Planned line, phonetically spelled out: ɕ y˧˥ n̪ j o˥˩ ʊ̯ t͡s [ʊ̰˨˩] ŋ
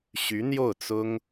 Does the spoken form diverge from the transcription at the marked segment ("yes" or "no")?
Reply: yes